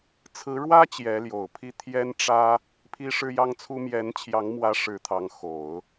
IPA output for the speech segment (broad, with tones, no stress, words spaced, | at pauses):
t͡sʰɹ̩˧˥ɻwä˥ t͡ɕjɛ˧˥ljo˨˩ʊ̯ pʰi˥˩ t̪ʰjɛ˥nʈ͡ʂä˥ | pʰi˥ʂɻ̩˥jɑ˥ŋt͡sʰu˥ mjɛ˧˥nt͡ɕʰjɑ˧˥ŋmwä˧˥ ʂɻ̩˧˥t̪ʰɑ˧˥ŋ xo˨˩˦ʊ̯